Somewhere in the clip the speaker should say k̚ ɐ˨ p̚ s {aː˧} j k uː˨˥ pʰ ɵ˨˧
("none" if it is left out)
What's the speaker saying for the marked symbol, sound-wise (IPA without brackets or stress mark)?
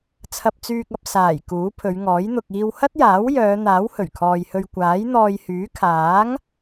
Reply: aː˨˩